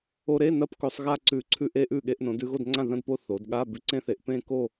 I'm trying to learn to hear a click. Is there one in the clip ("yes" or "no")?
yes